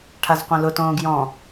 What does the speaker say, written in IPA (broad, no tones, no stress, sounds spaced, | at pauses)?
ʈʰ a z qʷ ẽ l ʊ t õː ɡ j ɔ̃